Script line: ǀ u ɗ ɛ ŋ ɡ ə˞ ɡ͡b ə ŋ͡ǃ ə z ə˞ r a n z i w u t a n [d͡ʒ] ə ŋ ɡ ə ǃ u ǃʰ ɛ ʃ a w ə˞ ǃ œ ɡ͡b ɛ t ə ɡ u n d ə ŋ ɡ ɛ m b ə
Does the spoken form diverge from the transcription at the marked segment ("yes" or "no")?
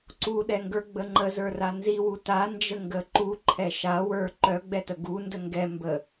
no